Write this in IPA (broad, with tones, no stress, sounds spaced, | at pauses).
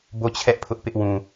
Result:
b o˦˨ t͡ɕʰ ɛ˦ ʔ pʰ ʊ˦ ʔ p ɪ˦ ʔ w ũ˨